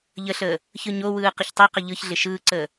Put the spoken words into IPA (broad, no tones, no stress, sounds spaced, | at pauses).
ʎ ə ɬ əː | ç ɯ ɲ o w ɯː q ə ç tˤ ɛ q ə ʎ ɯ ç ɮ ɪ ʃ ɯː ǀ əː